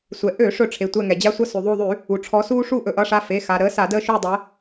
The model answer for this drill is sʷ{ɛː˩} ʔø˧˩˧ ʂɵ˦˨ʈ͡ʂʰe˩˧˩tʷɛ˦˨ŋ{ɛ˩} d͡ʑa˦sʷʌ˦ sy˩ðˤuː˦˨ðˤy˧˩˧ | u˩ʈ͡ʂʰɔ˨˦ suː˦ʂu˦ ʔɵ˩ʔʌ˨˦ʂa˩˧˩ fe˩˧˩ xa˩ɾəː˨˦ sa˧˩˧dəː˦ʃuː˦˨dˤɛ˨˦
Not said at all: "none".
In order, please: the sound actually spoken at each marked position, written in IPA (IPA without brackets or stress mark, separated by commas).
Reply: ɛ˩, ɛ˩